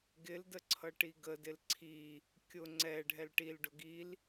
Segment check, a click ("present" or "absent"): present